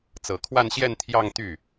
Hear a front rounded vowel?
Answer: yes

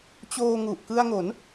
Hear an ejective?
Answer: no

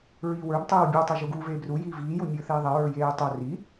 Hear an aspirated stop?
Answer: no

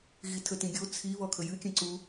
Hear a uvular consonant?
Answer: no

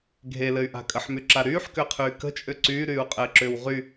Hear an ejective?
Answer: yes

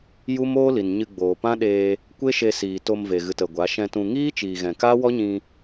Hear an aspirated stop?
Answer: no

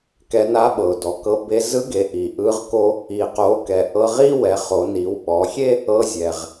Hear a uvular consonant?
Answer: yes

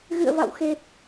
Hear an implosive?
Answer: no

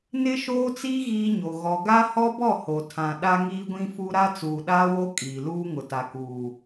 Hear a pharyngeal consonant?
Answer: no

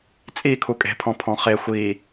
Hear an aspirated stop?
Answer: yes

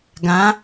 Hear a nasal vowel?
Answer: yes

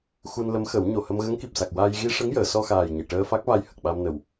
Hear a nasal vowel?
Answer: no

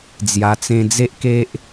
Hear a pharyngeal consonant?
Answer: no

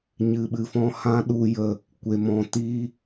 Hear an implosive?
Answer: yes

